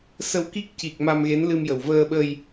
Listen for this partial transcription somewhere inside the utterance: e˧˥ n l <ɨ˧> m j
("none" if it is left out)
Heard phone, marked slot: ɨ˧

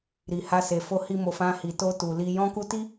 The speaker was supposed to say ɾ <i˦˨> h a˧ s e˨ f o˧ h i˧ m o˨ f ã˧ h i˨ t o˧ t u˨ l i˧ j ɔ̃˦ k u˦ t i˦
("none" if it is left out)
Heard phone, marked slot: i˨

